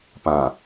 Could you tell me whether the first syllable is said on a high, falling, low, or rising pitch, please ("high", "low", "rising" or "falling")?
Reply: low